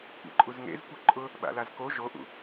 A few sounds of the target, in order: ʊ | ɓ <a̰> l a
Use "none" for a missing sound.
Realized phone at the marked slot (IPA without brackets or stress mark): a̰